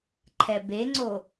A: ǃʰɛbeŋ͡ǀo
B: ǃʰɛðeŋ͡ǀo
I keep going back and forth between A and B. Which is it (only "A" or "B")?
A